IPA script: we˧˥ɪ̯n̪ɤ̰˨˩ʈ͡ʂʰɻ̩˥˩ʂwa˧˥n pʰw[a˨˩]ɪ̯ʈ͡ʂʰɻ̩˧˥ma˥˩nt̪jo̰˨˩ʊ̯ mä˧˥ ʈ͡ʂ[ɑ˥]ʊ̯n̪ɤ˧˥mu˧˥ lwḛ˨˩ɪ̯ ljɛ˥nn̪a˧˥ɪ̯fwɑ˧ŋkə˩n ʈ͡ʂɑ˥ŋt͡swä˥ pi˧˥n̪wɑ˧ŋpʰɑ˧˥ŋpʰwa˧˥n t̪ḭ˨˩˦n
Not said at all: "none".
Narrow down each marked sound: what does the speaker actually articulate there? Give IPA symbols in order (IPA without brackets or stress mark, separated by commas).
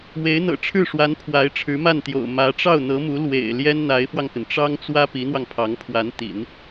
a˧˥, ɑ˥˩